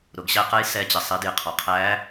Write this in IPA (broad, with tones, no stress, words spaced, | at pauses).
ɾʊ˩ɡɕæ˧qə˧˥j sɛ˧˥t͡ɕɪ˩ sˤi˩˧djɪ˩˧qʰɔ˩qʰæː˧˥